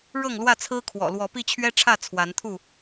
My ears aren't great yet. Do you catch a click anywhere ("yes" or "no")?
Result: no